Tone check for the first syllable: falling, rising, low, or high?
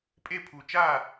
falling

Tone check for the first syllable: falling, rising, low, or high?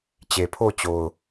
low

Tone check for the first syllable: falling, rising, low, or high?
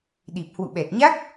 low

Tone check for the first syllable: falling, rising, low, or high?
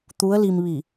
rising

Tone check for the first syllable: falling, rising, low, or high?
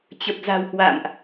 low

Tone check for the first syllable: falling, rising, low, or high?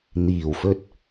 low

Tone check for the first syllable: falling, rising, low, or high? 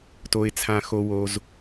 low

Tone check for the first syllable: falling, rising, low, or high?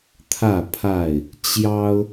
falling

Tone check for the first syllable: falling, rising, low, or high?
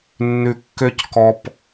low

